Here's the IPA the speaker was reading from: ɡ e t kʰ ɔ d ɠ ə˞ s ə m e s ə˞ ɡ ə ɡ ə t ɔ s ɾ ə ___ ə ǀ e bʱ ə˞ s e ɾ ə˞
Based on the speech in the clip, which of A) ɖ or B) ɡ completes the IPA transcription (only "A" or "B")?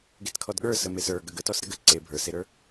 B